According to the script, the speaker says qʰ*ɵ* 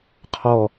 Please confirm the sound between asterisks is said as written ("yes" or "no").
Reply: no